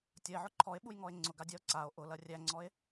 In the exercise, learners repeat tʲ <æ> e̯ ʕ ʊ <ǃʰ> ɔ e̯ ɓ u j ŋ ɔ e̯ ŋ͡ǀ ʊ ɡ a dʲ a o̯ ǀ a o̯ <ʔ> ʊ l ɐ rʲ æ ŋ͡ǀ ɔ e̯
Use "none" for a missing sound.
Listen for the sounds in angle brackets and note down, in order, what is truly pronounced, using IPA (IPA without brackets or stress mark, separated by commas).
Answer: ɐ, ǃʰ, ʔ